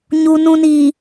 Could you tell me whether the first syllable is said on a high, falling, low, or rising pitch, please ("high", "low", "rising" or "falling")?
low